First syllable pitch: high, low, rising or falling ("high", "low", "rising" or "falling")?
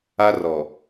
high